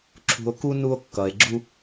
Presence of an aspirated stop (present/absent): present